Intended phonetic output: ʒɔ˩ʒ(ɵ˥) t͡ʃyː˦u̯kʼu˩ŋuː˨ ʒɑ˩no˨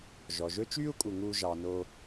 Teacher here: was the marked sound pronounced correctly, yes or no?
no